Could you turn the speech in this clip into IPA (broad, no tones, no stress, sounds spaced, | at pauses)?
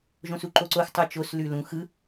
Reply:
ʒ õ s u ǃ o ǀ o x tˤ o t͡ʃ o s l ʉ l ũ x ɯ